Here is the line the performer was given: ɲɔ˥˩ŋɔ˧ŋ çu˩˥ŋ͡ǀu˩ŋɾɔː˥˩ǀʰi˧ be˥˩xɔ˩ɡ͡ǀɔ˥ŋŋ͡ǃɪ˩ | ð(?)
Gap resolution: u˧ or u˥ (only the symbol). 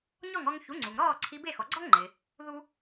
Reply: u˥